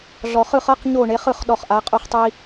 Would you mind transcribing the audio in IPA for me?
ɮ ɔ˧ χ ɯ˥˧ χ ɤ˥ q ɲ o˥˧ ɳ e˧˥ χ ɯ˥˧ χ ɗ ɔ˥˧ χ ʔ a˧˥ qʼ o˥ χ tˤ i˥

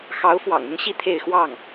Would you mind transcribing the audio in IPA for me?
x ɑ˧˥ ʊ̯ f w ɑ̰˨˩ ŋ ʊ˥ ŋ ɕ i˥˧ t̪ʰ e˥˧ ɪ̯ x w ɑ˥˩ ŋ

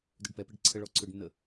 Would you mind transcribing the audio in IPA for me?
d ø ɖ p ɛ p ɛ ɖ ǀʰ ə ɭ ɔ ǀʰ ø ɖ nː ə

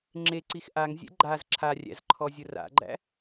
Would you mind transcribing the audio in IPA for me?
ŋ͡ǁ e ǀ i x ʔ a ŋ zʲ ɛ̰ ɡ͡ǃ a z ǁʰ a rʲ æ̰ z ǃʰ ɔ zʲ ʊ r a̰ ɡ͡ǃ æ̰

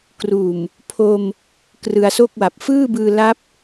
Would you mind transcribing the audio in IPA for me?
k r uː˨˩ m | pʰ o˧ m | k r ɯ˧ a̯ s o˥˩ k̚ w a˨˩ p̚ f ɯː˥˩ b ɯː˧ l a˦˥ p̚

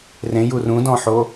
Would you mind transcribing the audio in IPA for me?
r ẽ j u r ũ d ɔ̃ ħ o

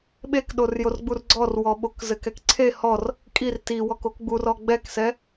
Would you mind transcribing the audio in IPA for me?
ɓ e k ɗ o r j o r ɡ͡b u r ɡ͡ǀ ɔ r w ɔ ɓ o k z ɘ k ɛ k ǀʰ e h ɔ r | kʼ i r t i w ɔ k o k ɡ͡b u r ɔ ɡ͡b ɛ k s ɛ

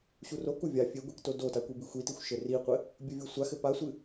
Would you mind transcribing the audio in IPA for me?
ɕ u r o k u vʲ a fʲ e ɡʷ i k t o d o t a kʷ i b i xʷ i t i xʷ ʃ ɘ r i qʷ ɘ | bʲ ɘ vʲ o sʷ a x ɘ p a sʷ ɨ

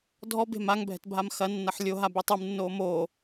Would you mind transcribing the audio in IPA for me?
dʱ ɔ b e̤ m a ŋ bʱ ɛ̤ t bʱ a m x ɐ nː ɐ ħ lʲ o ɦ a b i tˤ ɨ m nː oː m oː

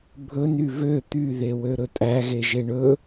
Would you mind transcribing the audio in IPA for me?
bʱ ɵ n y v ø t̪ y ð e w ø ɾ ɵ tʼ æ ɣ e ʒ e ɳ ɵ

